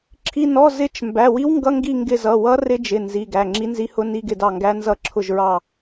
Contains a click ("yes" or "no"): yes